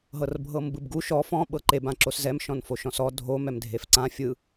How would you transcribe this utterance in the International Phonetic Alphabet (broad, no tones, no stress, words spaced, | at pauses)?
ɦɤrbʱɤmbɯbɡu ʃɔ fɔ̃ ɓɤǃeb ãǁoszɛm ʃɔ̃nfoʃɔ̃sɔ dʱo mɛmdʱefǀã fʲɯ